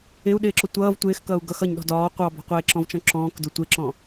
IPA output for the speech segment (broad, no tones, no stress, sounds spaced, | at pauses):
ɪ u̯ ɗ ɪː ǁ ʊ tʷ ʌː v tʷ ɪː x k ʌː u̯ ɡ ʌ x ʌ ɲ ɗ ɔ̤ d ɒː qʷ ɑ b ɔ̤ qʷ ɪː ǁ ɔ̃ v t͡ʃ ɔ̃ ǁ ɔ̃ː k d ʊ tʷ ɪ ǁ ɔ̃